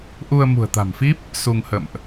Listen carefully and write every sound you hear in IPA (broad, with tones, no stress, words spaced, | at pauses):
ʔu˧ə̯ mṳ˨˩ə̯t̪a̤˨˩mfi˦˥p̚ | su˧ŋ hə̰˧˨mʔ